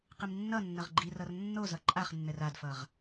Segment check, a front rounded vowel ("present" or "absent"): absent